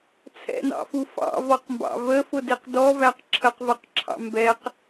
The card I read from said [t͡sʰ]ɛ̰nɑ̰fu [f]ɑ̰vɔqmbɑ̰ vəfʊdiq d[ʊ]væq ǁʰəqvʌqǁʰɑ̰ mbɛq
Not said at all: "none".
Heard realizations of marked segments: t͡sʰ, f, ɔ

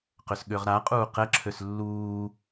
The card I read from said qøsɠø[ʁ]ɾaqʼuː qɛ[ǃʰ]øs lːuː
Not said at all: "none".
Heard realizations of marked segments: ʁ, ǁʰ

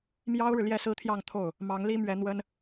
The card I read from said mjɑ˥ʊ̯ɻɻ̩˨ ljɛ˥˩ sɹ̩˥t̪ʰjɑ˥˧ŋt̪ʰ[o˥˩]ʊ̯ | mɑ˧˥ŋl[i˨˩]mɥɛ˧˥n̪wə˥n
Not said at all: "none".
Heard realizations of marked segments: o˥˩, i˥

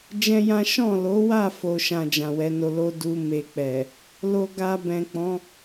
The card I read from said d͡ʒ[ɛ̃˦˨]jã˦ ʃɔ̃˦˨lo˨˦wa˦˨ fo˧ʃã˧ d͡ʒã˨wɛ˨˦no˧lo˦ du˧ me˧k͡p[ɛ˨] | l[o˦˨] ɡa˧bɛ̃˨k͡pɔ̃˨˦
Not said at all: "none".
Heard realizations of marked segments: ɛ̃˦, ɛ˨, o˧

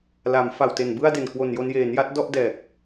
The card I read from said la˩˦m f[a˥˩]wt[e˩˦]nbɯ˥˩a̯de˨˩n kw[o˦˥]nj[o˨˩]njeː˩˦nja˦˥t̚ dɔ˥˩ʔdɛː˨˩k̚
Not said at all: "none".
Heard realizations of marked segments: a˨˩, e˨˩, o˨˩, o˧

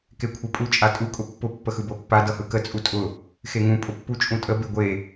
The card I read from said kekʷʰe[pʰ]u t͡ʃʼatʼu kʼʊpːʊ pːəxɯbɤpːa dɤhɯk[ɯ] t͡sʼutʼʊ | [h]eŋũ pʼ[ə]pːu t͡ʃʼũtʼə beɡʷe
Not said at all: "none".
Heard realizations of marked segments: pʼ, ə, x, ʊ

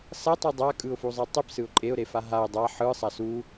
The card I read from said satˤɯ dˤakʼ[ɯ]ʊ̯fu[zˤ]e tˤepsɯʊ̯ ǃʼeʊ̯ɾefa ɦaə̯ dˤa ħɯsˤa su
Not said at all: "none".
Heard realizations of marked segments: ɯ, zˤ

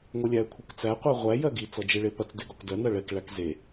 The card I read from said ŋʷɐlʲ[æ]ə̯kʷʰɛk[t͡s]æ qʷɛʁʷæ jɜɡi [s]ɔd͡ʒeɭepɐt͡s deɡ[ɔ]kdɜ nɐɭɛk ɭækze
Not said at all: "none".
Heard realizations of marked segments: æ, t͡s, t͡s, ɔ

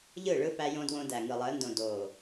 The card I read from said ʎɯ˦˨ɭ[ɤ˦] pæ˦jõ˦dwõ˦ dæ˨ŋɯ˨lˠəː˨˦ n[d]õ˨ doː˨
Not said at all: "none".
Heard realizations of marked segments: ɯ˦, d

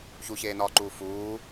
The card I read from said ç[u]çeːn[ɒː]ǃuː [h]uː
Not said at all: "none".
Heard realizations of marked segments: u, ɒː, f

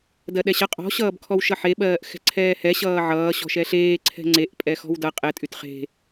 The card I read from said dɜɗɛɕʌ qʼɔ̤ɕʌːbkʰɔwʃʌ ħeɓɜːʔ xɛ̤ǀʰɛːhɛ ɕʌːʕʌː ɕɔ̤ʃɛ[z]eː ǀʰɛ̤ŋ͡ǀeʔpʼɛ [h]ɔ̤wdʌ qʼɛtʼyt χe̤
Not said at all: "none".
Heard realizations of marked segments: ɬ, x

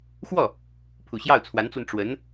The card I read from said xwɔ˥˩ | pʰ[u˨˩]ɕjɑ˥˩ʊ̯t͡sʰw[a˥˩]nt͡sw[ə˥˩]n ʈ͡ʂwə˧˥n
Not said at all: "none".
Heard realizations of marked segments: u˨˩, a˧˥, ə˧

